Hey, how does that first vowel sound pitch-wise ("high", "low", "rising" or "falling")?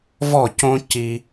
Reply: falling